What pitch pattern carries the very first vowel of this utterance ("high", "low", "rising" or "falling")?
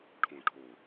low